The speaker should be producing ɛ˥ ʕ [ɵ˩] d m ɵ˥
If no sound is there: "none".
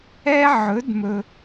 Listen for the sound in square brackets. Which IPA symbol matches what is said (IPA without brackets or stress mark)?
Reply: ɵ˧˥